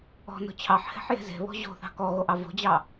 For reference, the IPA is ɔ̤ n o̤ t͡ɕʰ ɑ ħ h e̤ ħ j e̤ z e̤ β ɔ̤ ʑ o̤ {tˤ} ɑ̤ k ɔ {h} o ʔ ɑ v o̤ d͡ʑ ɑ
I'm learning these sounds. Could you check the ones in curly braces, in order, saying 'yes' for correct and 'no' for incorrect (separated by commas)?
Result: no, no